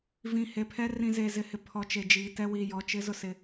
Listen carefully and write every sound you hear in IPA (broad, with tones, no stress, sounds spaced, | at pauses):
v ĩ˨ h e˨ pʰ ɛ˦ r ĩ˨ z e˨ z ɪ˨ h ɪ˨ pʰ ɔ˨ t͡ʃ e˨ d͡ʒ iː˨ t ɛ˦ w iː˨ j ɔ˨ t͡ʃ ɪ˦ z ʊ˦ s ɪ˦